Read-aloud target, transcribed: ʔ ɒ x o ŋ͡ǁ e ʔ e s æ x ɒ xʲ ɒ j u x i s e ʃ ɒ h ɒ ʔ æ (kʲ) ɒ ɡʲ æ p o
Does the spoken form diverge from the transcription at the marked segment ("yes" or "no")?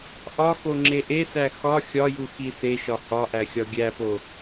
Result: yes